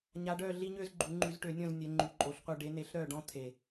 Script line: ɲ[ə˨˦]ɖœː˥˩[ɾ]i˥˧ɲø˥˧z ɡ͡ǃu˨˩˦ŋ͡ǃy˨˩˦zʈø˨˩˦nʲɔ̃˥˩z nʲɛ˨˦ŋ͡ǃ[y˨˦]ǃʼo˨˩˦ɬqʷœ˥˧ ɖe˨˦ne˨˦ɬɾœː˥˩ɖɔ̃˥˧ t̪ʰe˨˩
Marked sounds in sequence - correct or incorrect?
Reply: incorrect: a˨˦, incorrect: ɮ, correct

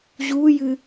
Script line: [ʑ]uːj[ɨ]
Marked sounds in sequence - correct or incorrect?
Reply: correct, correct

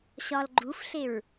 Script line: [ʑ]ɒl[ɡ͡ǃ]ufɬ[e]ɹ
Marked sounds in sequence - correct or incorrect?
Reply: incorrect: ɕ, correct, correct

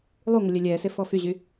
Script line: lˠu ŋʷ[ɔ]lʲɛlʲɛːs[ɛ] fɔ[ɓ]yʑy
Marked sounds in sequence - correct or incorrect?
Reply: incorrect: ə, incorrect: e, incorrect: f

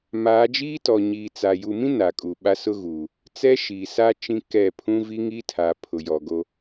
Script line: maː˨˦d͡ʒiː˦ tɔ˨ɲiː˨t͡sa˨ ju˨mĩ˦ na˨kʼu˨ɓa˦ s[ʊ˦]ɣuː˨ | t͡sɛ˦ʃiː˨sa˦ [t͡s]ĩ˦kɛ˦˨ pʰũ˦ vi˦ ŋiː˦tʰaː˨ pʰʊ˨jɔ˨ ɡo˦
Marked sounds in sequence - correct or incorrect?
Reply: correct, incorrect: t͡ʃ

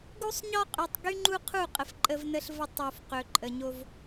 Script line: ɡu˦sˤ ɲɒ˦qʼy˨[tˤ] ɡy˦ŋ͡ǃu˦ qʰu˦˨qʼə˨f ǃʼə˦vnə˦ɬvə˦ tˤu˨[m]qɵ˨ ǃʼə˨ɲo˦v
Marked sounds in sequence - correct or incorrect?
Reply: correct, incorrect: f

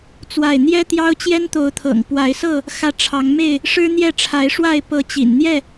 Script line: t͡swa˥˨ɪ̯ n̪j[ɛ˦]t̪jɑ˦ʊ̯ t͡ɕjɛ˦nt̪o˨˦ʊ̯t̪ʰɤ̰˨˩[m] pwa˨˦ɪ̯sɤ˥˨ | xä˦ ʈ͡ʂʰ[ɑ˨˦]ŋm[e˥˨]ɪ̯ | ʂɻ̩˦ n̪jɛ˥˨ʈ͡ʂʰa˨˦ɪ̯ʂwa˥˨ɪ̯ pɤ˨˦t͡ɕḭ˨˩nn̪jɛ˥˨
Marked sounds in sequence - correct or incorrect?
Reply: correct, incorrect: ŋ, correct, correct

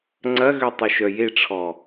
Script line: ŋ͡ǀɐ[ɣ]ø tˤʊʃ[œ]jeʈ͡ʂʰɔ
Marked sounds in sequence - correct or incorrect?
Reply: correct, correct

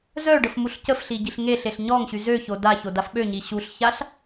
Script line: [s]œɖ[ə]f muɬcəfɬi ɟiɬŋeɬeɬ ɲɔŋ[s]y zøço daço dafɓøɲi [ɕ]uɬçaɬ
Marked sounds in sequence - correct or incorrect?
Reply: incorrect: z, correct, incorrect: ɕ, correct

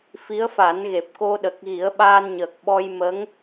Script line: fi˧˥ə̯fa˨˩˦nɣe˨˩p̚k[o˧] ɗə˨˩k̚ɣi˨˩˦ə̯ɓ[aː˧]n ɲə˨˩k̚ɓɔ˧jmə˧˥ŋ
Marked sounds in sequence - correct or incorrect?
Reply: correct, correct

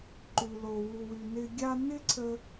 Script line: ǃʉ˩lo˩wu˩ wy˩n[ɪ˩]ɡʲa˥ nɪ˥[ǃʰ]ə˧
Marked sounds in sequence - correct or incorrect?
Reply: incorrect: ɪ˧, incorrect: ǀʰ

